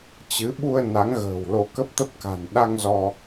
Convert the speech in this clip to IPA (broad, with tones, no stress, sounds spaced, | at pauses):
t͡ɕ ɨ˨˦ ɓ u˧ ə̯ n a˨˦ ŋ ɣ ə̤ː˨˩ w l o˧ k ə˦˥ p̚ t̪ ə˦˥ p̚ k a̤˨˩ n ɗ a˧ ŋ z ɔ˧